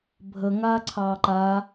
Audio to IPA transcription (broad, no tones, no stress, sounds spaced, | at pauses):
bʱ ə ŋ aː ǀʰ ɑː ǃ a